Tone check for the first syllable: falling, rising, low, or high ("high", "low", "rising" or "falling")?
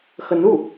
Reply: rising